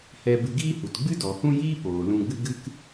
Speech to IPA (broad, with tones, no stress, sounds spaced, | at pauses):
h ɛ˧ b ɨ˧ ɡ iː˦ h u˨ t ɡ͡b ɨ˦ d ɔ˨ h ũ˦ j iː˦ p oː˨ l ũ˧ ɡ͡b ɨ˦ ɡ ɨ˦ k